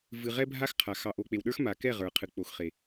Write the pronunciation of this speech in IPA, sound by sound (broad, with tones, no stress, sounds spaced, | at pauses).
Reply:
v ɨ˨ ʁ ɛ˦ bʱ a˦ x qʰ a˨ x ɑ˨ ʔ o˨ k͡p e˨ w ɗ ə˞˦ x m a˨ k ɛ˦˨ ʁ ə˞˨ qʰ ɨ˨ k͡p o˨ x χ e˨